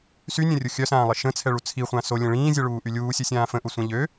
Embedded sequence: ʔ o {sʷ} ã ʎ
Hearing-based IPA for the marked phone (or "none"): sʷ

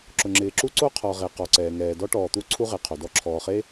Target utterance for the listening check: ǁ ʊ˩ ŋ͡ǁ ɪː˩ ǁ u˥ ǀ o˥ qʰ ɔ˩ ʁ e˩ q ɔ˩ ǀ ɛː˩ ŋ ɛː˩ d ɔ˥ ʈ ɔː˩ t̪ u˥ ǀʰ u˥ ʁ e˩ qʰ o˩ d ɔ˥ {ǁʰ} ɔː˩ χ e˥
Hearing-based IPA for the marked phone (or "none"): ǁʰ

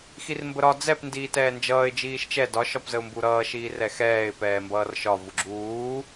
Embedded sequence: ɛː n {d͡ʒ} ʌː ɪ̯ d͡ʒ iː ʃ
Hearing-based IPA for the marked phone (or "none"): d͡ʒ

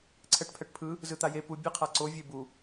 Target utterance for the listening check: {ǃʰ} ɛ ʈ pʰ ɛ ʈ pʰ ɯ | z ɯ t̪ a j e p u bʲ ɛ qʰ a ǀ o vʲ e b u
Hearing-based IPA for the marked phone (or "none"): ǀʰ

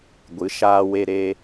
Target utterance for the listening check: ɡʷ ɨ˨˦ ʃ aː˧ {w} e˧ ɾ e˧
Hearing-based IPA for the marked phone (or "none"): w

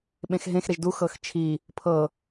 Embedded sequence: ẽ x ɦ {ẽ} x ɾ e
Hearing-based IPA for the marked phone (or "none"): ẽ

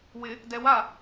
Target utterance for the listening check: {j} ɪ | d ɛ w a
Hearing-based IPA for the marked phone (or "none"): w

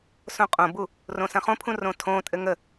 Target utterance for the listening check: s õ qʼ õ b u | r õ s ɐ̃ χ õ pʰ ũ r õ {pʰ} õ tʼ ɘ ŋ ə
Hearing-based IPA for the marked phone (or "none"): tʰ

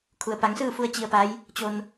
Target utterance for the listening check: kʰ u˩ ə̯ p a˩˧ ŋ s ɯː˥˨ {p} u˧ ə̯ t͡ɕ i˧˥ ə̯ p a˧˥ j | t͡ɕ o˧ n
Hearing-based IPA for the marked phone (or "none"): f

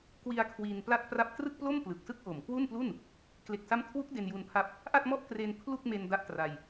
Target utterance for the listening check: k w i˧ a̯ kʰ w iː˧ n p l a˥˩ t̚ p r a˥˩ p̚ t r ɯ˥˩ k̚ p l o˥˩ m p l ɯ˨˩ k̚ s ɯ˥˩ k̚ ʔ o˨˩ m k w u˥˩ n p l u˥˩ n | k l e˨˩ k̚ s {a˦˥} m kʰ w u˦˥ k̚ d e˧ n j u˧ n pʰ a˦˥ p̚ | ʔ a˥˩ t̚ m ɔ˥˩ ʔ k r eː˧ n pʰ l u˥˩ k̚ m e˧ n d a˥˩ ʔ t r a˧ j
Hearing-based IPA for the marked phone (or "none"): a˦˥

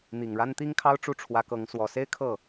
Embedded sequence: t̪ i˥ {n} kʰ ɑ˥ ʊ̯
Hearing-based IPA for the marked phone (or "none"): ŋ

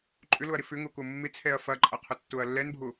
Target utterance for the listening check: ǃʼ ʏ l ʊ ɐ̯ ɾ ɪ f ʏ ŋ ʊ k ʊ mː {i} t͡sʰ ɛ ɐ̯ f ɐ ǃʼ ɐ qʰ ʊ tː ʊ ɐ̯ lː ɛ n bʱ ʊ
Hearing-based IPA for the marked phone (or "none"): ɪ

